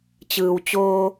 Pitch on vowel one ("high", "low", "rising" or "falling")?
low